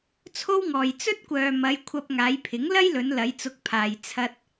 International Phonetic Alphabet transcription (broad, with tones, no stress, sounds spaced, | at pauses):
t͡sʰ o˥ w ŋ ɔː˨ j t͡s ɵ˥ t̚ kʷ œː˨ m ɐ˨˧ j kʷʰ ɐ˧ p̚ ŋ aː˨˧ j pʰ ɪ˨˥ ŋ l ɐ˥ j l ɵ˨˧ n l ɐ˨˧ j t͡s ʊ˨˥ k̚ pʰ aː˨ j t͡sʰ ɐ˥ t̚